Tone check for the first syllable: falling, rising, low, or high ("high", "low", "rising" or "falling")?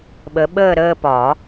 rising